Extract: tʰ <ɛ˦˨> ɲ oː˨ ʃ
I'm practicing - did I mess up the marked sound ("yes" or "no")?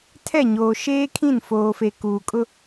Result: no